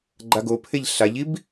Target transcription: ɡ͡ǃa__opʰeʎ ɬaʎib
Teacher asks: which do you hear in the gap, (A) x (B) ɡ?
B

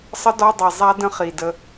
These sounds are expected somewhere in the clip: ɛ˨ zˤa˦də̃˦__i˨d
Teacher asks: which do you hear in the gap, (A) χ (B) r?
A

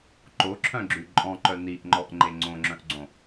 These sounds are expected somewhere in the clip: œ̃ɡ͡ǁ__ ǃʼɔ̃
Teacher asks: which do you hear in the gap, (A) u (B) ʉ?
B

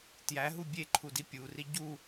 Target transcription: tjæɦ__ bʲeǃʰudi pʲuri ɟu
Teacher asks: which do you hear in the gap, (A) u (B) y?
A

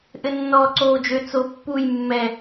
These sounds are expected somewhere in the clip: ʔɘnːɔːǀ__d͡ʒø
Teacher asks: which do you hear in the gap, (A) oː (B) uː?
A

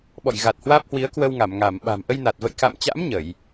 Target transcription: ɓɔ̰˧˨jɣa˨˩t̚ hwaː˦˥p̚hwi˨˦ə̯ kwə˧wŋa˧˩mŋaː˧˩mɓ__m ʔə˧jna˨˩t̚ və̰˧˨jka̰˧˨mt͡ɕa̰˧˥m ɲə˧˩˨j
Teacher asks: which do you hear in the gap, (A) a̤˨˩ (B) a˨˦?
A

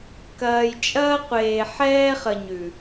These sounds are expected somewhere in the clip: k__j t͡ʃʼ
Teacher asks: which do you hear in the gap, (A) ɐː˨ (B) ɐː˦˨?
A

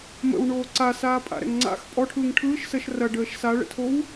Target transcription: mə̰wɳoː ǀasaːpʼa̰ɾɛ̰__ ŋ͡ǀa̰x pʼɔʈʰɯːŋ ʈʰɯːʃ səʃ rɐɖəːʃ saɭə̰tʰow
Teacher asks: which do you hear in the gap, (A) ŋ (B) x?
A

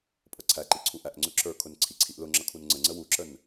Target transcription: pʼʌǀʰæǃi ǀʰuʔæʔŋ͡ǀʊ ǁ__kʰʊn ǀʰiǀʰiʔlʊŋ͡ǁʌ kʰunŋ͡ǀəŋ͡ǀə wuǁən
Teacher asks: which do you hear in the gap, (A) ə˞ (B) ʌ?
A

